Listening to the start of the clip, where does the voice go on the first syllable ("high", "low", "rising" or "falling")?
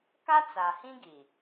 high